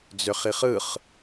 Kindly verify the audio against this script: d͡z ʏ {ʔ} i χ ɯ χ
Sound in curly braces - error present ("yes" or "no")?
yes